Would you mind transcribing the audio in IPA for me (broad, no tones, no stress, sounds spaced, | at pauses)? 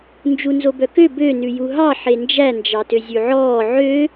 n d͡ʒ u n z o b œ k ø b ø n ʉ j u ɦ ɑ ħ e n d͡ʒ æ n d͡ʒ ɑ t ø zʲ ʉ ʕ ɔː ʕ ø